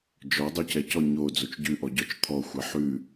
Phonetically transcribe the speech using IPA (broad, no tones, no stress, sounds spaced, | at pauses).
d͡ʒ ɔ dˤ ʉ c ɛ c ɔ ɲ o d͡z o t͡ʃ ɟ ʉ ʔ ɔ ɟ ɔ t͡ʃ t̪ʰ ɔ xʷ ɛ ħ ʉ